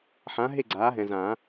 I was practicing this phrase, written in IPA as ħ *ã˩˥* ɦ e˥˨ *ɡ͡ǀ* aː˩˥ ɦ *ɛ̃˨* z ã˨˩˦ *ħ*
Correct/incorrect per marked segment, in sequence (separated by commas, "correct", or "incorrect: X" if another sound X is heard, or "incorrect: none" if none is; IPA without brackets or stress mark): correct, correct, correct, incorrect: none